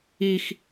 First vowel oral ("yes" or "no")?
yes